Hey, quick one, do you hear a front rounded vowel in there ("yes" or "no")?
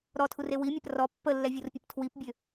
yes